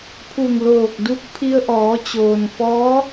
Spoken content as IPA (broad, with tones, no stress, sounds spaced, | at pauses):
pʰ u˧˩ ŋ l oː˧˩ k̚ d u˧˥ k̚ pʰ i˧ ə̯ ʔ ɔː˩˧ t͡ɕ oː˩ n f ɔː˧˥